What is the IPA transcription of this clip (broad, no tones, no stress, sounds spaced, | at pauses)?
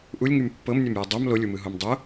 ʔ u lʲ ŋ y m pː ɤ m nʲ œ m j ɤ dˤ o m l o lʲ u m ɯ ɦ o m dˤ o